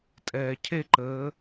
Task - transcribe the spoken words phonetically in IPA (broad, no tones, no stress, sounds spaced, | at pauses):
tʼ ɛː cʰ e ǃ əː